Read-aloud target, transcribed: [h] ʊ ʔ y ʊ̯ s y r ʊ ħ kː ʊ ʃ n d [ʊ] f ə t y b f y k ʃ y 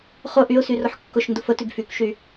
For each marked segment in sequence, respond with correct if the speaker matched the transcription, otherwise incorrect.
incorrect, correct

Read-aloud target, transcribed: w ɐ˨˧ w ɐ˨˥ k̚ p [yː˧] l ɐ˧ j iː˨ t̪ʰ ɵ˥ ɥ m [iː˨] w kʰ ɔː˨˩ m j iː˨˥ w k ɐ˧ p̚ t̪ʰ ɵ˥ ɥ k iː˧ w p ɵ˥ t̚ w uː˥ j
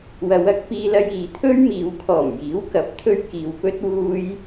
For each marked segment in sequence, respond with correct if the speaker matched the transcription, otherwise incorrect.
incorrect, incorrect

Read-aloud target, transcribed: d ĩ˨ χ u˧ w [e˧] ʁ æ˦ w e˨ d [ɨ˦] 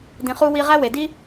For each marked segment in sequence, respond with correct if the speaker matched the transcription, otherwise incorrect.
incorrect, incorrect

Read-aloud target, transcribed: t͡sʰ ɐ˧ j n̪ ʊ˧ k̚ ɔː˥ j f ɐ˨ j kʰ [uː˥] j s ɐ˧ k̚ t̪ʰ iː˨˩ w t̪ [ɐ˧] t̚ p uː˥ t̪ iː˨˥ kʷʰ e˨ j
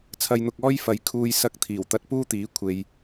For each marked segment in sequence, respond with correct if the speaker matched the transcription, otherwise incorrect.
incorrect, correct

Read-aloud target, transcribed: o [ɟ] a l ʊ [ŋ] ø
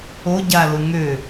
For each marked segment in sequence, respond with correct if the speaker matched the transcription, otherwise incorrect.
correct, correct

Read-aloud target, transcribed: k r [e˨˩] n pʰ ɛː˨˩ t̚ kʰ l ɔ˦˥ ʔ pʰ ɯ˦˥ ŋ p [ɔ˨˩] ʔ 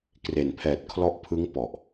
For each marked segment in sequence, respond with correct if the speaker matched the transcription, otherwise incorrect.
correct, correct

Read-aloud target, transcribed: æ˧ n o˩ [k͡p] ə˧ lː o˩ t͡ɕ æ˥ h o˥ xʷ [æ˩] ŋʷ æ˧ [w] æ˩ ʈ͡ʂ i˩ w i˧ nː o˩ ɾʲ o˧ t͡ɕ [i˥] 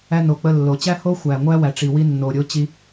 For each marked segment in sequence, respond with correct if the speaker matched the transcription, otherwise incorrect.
correct, correct, correct, incorrect

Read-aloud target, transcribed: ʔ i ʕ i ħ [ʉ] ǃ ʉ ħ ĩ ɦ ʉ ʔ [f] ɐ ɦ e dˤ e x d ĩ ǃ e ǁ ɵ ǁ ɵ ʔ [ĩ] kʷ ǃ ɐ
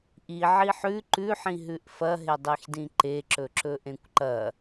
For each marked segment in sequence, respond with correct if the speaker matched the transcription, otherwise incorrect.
correct, correct, incorrect

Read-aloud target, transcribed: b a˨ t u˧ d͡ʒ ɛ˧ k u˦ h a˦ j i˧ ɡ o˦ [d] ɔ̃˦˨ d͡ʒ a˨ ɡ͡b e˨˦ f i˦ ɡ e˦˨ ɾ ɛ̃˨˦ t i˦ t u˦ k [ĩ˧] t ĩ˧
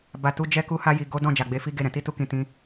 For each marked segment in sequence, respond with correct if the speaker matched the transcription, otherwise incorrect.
correct, correct

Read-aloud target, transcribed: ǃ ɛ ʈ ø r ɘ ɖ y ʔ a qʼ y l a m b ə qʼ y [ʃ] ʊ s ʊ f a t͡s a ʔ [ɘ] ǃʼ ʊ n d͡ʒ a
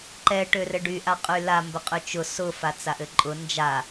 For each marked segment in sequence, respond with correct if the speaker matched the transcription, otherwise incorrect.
incorrect, correct

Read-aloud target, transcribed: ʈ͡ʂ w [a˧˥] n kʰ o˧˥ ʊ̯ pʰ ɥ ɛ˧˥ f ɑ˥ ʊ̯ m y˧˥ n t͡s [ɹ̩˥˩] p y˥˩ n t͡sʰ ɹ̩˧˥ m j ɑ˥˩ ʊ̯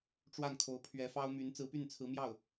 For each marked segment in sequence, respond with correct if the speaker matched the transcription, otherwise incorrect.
incorrect, incorrect

